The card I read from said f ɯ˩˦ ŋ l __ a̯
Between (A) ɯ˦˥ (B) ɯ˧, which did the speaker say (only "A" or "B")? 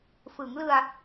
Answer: B